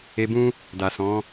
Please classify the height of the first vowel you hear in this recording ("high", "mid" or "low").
mid